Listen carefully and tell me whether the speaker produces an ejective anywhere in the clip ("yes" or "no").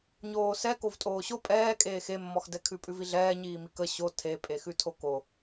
yes